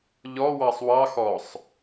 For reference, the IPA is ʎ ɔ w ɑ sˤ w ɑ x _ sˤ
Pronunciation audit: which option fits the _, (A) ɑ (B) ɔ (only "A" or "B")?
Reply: B